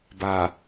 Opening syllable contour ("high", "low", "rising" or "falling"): low